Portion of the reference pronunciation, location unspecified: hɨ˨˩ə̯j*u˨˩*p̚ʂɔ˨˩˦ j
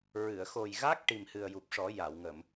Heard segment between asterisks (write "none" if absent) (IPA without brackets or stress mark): u˨˩